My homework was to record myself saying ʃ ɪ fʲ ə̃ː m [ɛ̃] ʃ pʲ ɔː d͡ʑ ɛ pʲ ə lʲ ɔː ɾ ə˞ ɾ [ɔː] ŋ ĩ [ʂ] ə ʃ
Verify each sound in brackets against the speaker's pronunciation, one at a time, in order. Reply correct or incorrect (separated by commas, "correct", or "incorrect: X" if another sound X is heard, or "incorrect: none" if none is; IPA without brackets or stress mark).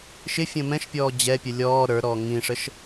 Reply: correct, correct, correct